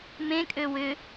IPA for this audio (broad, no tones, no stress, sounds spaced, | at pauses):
m ẽ kʼ ø w ʏ